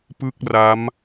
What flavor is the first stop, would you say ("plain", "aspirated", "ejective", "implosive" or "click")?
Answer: plain